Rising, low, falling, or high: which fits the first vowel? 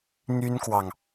high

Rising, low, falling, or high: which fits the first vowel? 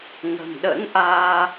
low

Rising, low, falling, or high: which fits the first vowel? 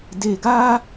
low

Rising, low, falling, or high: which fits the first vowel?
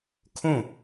falling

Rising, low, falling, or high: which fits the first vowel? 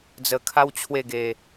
low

